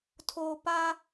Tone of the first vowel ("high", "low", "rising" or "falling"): low